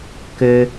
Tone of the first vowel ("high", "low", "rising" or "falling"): low